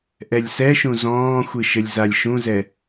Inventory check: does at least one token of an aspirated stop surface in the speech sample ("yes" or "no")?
no